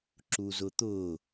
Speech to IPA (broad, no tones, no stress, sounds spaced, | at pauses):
ǁ u z ʊ t̪ ʊː